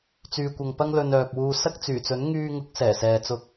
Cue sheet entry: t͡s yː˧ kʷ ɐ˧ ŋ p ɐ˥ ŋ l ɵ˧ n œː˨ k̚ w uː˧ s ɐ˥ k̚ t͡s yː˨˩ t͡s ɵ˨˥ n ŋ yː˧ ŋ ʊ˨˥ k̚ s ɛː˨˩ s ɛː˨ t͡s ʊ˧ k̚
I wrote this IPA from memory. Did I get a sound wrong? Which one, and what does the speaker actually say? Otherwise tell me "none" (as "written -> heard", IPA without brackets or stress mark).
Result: none